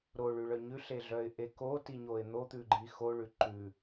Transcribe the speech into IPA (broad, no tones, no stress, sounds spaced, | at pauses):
ɾ o ɭ ʉ ɭ œ ɲ ʉ ɬ e ɮ œ ɪ̯ ʔ e k o t i ɲ o ɪ̯ n̪ o t̪ ʉ ɡ͡ǃ i x o ɭ ʉ ǃ ʉ